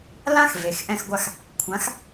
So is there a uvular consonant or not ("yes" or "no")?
no